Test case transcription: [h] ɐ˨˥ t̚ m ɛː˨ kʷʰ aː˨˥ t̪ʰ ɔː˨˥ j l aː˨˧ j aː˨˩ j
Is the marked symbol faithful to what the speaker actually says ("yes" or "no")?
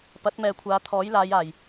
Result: no